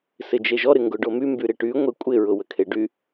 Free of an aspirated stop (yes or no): no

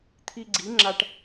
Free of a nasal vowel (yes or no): yes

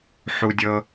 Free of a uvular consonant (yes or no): yes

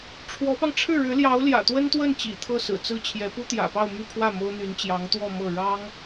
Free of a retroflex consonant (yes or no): no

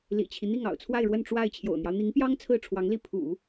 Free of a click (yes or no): yes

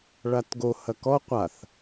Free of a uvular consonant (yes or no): no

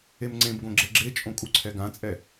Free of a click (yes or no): no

